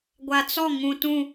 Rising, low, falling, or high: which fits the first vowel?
low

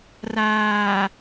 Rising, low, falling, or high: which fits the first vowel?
low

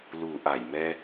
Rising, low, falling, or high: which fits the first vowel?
low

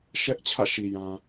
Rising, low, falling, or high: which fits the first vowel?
high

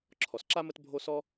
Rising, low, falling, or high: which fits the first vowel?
low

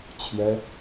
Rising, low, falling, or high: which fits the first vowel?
high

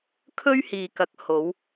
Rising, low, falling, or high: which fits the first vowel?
high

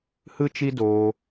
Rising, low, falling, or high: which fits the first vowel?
high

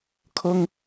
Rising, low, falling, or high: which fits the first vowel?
high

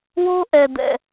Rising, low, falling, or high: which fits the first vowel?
high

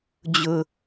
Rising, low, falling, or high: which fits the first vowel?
high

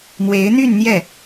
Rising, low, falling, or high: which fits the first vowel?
rising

